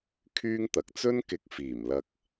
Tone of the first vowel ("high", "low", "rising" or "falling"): high